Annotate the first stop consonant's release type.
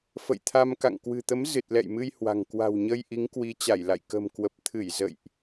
aspirated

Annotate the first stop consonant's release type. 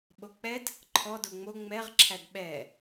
implosive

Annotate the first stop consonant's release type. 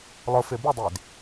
plain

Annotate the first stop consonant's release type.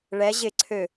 click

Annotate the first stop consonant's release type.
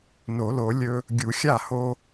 plain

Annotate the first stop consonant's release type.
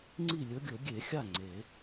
click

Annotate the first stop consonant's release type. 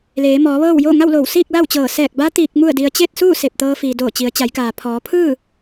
plain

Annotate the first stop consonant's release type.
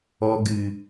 plain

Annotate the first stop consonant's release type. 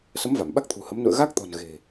implosive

